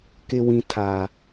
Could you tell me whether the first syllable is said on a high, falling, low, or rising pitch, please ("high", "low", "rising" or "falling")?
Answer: low